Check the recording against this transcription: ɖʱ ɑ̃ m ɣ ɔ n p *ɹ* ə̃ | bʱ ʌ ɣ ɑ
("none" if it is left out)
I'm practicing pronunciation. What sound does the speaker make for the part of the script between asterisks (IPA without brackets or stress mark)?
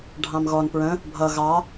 ɹ